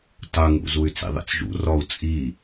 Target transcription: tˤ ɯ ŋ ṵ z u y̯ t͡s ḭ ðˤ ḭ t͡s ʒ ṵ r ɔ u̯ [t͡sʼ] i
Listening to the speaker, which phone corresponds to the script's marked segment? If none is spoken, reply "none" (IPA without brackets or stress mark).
t͡sʼ